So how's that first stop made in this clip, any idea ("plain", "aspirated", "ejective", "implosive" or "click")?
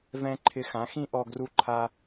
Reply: click